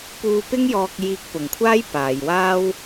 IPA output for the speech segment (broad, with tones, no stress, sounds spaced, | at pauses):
p uː˧ p ɪ˥ ŋ j ɔː˧ k̚ j iː˧ k̚ p ʊ˨ ŋ kʷʰ aː˥ j p aː˨˧ j w aː˥ w